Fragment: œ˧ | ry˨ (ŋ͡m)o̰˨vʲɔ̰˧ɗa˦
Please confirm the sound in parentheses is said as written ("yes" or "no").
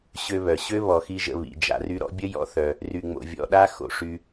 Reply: yes